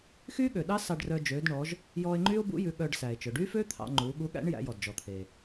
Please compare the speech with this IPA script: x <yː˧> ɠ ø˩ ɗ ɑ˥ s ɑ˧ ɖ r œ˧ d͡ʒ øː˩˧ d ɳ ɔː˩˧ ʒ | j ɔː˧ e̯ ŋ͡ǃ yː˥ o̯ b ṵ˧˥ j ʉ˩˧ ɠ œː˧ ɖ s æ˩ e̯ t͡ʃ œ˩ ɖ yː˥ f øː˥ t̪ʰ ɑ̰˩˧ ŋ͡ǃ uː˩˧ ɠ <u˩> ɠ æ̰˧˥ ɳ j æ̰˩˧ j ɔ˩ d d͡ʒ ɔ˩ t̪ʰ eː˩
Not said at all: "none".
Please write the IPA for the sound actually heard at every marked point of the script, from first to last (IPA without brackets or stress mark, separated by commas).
yː˥, u˧˥